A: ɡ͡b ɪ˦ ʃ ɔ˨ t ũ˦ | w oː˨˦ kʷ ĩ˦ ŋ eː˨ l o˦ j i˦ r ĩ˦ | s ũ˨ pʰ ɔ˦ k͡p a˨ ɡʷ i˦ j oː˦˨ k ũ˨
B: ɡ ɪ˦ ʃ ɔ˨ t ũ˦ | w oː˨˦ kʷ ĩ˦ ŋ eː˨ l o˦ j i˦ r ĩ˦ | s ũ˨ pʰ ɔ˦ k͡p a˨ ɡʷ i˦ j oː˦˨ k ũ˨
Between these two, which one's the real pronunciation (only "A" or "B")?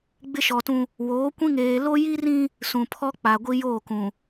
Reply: A